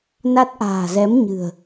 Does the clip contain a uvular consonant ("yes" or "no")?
no